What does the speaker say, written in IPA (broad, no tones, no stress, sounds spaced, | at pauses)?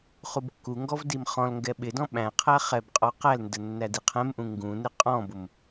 χ u b kː u ŋ ɡ ɔ v d i m χ ɔ̃ l ŋ ɡ ɛ ɓ ɪ d ɔ̃ ɓ æ̃ qʰ æ χ ɛ b qʼ ɔ q æ l n d ə nː æ d i qʰ ɛ̃ m ʔ ũ ŋ ɡ ũ n ɪ qʼ ɔ̃ b ʊ m